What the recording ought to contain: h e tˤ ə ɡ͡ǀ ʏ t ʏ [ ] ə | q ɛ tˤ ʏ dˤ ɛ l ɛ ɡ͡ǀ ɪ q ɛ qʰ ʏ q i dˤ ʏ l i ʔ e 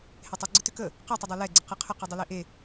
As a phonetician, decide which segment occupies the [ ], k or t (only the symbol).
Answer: k